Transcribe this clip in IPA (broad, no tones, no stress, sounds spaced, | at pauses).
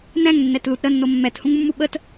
n ɛ̃ ŋ nː ɛ t l u t ɾ ə nː o mː ɛ t h ũ ŋ mː u ɓ ə t